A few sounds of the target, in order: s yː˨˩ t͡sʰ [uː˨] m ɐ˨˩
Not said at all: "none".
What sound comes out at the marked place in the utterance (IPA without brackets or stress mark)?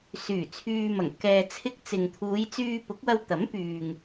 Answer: yː˨